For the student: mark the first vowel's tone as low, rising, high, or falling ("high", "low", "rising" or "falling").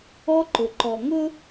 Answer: high